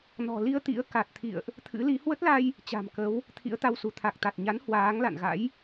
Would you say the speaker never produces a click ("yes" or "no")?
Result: yes